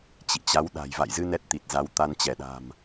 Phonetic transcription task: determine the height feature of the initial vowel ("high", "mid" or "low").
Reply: high